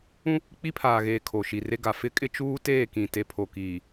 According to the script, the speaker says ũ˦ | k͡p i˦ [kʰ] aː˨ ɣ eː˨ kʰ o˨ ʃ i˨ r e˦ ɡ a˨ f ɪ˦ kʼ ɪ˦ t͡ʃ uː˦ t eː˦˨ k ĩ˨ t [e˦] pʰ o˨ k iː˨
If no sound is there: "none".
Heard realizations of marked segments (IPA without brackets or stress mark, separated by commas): pʰ, e˨